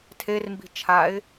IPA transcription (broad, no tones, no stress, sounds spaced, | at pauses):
tʰ e r m b i̤ t͡ʃʰ a ɪ̯